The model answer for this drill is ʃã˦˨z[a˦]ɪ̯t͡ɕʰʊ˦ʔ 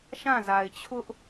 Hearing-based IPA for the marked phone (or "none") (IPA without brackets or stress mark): a˨